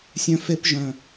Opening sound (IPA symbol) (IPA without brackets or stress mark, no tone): sʲ